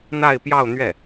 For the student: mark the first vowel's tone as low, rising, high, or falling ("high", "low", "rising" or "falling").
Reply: falling